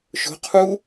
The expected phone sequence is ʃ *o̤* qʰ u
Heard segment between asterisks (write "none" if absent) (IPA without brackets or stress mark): o̤